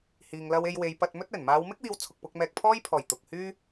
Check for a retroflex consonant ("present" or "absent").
absent